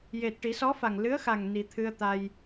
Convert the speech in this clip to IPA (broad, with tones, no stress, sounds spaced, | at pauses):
j e˨˩ t̚ ʈ i˨˩˦ s ɔ˧˥ f a˨˩ ŋ l ɨ˧˥ ə̯ x a˨˩ ŋ n i˨˩ t̪ʰ ɨ˧ ə̯ t̪ a˧ j